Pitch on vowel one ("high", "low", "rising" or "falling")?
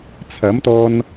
rising